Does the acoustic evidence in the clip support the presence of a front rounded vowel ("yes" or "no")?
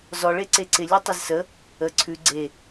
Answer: no